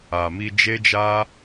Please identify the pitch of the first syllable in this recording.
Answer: low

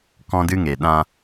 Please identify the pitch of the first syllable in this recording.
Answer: high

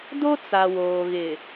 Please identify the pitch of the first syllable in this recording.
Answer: high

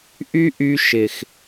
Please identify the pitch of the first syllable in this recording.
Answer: high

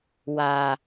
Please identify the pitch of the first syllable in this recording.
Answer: low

